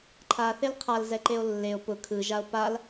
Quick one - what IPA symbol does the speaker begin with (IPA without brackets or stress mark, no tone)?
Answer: ǃʰ